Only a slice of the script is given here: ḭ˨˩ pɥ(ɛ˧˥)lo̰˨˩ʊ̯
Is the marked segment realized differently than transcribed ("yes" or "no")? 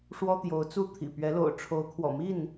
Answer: no